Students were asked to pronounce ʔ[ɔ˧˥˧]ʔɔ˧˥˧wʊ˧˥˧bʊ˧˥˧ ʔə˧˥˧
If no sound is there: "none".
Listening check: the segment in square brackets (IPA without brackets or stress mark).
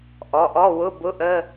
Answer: ɔ˩˧˩